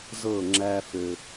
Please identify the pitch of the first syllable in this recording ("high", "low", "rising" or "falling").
falling